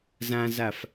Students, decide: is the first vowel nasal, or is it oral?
nasal